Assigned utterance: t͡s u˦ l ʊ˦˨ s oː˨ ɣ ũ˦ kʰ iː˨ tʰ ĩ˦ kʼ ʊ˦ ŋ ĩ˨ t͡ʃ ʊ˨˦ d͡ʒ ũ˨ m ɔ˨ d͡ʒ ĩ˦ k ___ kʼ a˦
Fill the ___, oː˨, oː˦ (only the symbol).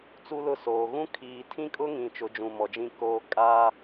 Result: oː˦